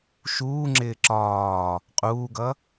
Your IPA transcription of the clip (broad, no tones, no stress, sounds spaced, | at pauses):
ʃ uː ŋ͡ǁ ɪː ǁ ɒː | qʼ uː ɡ ʌ